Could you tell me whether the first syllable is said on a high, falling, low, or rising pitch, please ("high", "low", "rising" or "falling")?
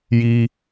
high